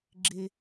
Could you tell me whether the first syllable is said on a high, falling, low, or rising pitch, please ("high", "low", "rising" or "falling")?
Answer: high